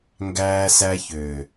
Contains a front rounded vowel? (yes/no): yes